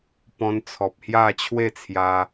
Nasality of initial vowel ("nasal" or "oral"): nasal